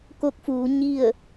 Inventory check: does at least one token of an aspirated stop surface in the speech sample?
no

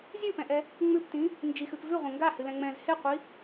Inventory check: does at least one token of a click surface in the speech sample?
no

